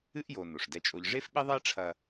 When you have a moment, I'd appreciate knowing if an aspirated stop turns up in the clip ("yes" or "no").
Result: yes